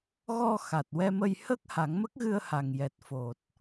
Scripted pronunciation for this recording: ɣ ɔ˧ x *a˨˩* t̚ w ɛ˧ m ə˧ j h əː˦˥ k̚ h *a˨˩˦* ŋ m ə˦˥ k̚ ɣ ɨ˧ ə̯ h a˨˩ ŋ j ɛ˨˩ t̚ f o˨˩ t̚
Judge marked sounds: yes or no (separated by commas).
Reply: yes, yes